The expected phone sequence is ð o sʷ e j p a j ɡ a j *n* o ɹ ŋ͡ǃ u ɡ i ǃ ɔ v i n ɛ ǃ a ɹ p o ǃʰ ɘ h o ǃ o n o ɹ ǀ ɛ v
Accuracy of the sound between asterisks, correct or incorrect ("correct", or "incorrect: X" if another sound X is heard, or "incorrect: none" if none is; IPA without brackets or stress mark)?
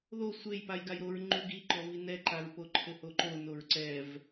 incorrect: ɾ